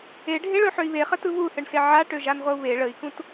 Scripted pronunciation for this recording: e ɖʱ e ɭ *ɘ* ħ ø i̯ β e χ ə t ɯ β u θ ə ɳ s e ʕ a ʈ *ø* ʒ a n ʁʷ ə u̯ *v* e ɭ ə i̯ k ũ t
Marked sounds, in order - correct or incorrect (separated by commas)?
incorrect, correct, incorrect